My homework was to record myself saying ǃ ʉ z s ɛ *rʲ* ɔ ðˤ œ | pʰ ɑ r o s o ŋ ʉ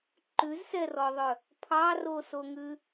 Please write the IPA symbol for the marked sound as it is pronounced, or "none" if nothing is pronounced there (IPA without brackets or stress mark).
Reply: r